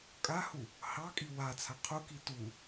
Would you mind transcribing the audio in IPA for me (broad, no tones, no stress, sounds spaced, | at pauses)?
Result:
kʼ a h u | h ɑ kʼ i w a t͡sʰ a qʰ u k i t u